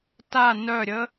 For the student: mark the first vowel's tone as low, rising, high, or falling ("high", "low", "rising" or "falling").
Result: falling